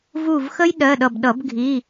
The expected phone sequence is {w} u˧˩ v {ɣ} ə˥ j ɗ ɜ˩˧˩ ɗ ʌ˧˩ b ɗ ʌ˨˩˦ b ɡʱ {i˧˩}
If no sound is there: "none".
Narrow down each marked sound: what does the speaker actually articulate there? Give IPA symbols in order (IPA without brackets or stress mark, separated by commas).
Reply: v, x, i˩˧˩